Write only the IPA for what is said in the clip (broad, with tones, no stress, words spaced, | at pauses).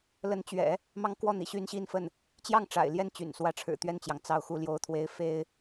lə˧˥nt͡ɕɥɛ̰˨˩˦ | mɑ˥ŋkwɔ˥˩n̪ḭ˨˩ ɕy˥nɕi˥nfə˥˩n | t͡ɕjɑ˥˩ŋ ʈ͡ʂa̰˨˩ɪ̯ljɛ˥˩nt͡ɕy̰˨˩n swä˧˥ʈ͡ʂʰɻ̩˨˩t̪ɥɛ˥˩nt͡ɕjɑ˩ŋ t͡sɑ˥˩ʊ̯xu˥ljo˥ʊ̯t̪ʰwe˥ɪ̯ fe˥ɪ̯